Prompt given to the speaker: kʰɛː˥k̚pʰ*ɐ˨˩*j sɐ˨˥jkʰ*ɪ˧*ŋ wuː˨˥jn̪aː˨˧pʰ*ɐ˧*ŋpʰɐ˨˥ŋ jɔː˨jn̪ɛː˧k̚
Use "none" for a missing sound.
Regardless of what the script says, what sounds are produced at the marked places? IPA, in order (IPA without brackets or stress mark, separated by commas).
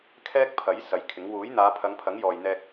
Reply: ɐ˨˥, ɪ˨˥, ɐ˨˧